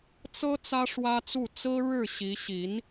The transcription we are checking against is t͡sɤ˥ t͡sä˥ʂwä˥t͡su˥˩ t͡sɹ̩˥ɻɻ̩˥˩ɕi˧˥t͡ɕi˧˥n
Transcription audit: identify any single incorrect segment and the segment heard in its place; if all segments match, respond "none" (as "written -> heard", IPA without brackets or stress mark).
t͡ɕ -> ɕ